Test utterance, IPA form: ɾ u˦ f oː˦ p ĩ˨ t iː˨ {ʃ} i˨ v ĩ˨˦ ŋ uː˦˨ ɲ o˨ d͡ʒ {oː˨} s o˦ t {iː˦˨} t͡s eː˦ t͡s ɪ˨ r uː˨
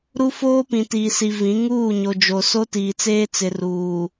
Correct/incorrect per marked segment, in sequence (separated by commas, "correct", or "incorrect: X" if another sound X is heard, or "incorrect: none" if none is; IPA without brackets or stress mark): incorrect: s, incorrect: o˨, incorrect: iː˨